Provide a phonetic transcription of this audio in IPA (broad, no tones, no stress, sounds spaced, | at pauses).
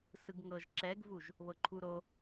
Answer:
s ɯ ɡ ŋ ɤ ʒ ǁ ɛ ɡ v u ʒ | β ɤ ǃʰ u ɾ o